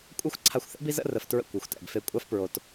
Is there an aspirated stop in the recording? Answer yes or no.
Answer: yes